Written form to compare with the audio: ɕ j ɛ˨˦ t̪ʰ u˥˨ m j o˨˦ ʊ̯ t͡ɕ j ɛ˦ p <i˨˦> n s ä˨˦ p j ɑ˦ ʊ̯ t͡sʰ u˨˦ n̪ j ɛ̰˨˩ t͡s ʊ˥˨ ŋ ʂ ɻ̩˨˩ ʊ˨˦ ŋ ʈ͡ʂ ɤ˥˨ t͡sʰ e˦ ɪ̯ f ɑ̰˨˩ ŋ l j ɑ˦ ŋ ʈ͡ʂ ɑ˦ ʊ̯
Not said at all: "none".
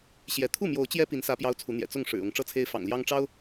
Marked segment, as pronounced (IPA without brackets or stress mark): i˨˦